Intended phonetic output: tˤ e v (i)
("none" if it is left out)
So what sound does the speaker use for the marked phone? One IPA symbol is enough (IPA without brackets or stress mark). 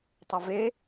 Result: e